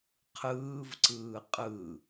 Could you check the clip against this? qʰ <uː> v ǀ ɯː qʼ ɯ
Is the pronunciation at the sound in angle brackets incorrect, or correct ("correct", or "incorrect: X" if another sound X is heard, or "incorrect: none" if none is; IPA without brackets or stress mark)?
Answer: incorrect: ɯː